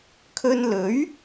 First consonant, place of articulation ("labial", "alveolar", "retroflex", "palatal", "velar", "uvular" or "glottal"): velar